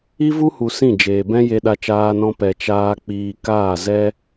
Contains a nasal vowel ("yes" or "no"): yes